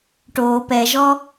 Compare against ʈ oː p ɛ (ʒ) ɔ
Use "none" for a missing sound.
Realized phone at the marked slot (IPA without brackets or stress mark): ʒ